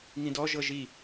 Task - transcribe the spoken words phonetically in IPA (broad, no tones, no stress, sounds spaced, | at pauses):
ŋ ĩ d ɔ ʒ ɤ ʒ i